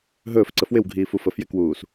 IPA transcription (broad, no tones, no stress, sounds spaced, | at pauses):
ɦ ɵː f ǀ ə f w ɪ w ɡʱ iː f u f ə f j ɪ k w uː s